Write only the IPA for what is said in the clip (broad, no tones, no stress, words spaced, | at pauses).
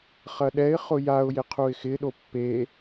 χɐɗɛɪ̯ χʊjaʊ̯jɪqʰuɪ̯ xɪɗo pːe